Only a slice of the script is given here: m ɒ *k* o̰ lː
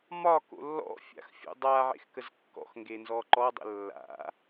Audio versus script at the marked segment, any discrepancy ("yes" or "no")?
no